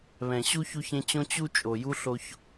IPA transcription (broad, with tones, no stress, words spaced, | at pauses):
βɛ̃˩ ɕu˥çu˦çẽ˦t͡ɕõ˥ t͡ɕu˥ t͡ʃʼo˩ju˥ɬo˦ç